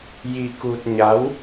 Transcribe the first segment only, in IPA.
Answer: j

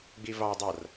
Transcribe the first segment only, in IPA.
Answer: ɡ͡b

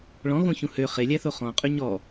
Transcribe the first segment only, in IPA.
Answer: ɭ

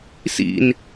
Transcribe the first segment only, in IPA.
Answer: s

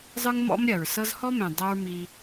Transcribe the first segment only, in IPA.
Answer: zˤ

